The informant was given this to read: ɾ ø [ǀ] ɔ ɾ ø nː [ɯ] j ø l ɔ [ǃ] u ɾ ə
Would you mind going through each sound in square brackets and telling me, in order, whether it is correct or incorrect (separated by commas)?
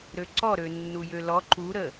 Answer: correct, incorrect, correct